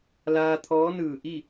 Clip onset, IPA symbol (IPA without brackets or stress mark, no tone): l